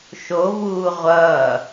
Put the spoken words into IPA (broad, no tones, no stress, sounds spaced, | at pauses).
ʃ o v uː ʁʷ ʌː